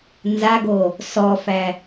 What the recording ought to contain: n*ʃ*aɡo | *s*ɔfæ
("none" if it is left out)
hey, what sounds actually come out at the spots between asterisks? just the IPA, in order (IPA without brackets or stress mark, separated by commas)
z, s